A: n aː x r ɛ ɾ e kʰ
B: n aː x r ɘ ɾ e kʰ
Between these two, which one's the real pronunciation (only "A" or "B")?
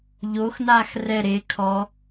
A